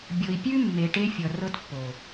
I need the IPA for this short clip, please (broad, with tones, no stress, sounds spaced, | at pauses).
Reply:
bʲ ɤ˨ i̯ pʲ ʉ˦ mː e˨ ʈ e˦ fʲ ʌ˨ r ɤ˦ t pː o˨